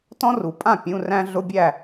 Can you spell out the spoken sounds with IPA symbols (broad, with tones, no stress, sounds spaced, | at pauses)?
t ɔ̃˥ r u˨˩˦ pʼ ã˥˨ pʲ ũ˧˥˧ r æ̃˥ ɮ ʊ˧˥˧ bʲ æ˥˨